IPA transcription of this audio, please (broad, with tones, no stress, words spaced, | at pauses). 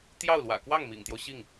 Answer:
t̪jɑ˥˩ʊ̯lwä̰˨˩ kwɑ˥˩ŋmḭ˨˩ŋt̪jo˦ʊ̯ ɕi˥˩ŋ